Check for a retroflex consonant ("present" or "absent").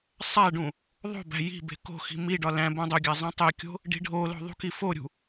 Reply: present